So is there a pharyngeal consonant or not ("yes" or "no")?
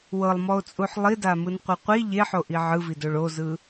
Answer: yes